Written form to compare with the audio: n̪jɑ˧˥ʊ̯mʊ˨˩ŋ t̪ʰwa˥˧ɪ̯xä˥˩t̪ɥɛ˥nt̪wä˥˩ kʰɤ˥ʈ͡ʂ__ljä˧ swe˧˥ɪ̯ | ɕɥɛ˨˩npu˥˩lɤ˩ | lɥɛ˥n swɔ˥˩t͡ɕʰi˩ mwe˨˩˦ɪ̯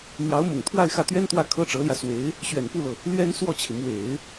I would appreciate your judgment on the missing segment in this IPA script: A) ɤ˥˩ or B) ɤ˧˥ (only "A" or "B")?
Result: B